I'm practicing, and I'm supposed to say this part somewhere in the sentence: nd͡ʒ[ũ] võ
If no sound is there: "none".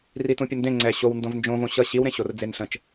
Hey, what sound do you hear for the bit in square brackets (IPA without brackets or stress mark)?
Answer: õ